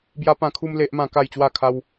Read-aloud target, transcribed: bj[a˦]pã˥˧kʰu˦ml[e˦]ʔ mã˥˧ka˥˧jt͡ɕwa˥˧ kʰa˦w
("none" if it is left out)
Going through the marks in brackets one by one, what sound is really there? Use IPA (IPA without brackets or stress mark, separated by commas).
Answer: a˦, e˦